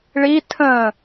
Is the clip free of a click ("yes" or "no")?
yes